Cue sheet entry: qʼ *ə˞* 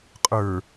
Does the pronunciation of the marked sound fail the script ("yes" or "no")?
no